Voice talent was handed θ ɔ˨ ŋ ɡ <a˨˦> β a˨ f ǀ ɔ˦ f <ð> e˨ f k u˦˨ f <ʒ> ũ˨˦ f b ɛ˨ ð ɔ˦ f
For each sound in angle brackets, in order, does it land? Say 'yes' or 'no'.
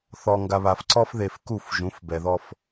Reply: no, yes, yes

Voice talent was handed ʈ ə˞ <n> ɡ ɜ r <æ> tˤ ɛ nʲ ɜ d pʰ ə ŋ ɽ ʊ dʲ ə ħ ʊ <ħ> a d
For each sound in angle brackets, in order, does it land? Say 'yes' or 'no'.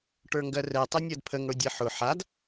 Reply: no, no, yes

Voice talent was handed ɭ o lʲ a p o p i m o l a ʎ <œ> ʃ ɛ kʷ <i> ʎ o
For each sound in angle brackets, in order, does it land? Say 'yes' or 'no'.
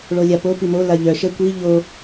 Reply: yes, yes

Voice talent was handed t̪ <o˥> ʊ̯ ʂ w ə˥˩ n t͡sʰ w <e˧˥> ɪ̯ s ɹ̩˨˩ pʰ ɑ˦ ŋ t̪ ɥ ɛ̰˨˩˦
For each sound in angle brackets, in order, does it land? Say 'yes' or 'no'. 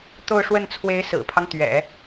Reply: no, yes

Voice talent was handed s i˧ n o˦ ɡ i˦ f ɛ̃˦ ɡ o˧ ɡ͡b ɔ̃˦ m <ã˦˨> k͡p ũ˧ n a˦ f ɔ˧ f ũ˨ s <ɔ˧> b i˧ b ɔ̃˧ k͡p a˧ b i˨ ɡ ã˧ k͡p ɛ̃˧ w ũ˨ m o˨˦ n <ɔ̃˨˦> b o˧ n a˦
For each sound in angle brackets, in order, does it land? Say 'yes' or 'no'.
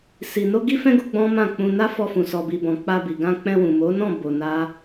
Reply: yes, yes, no

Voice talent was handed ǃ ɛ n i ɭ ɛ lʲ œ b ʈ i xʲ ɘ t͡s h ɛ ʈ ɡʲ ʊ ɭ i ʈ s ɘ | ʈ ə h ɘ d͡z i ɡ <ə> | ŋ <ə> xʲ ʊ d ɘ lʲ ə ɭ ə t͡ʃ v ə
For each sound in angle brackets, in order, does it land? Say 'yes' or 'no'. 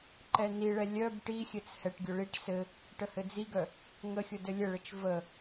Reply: no, yes

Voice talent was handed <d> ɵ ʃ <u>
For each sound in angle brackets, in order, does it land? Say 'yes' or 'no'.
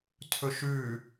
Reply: no, no

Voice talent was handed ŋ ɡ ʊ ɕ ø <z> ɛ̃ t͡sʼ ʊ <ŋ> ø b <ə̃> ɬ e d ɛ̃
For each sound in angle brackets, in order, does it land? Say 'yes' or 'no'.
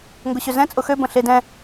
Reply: yes, no, yes

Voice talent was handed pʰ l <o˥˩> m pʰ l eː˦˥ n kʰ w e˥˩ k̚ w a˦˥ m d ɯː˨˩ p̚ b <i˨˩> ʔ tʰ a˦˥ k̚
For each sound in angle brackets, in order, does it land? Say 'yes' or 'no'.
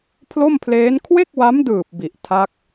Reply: yes, yes

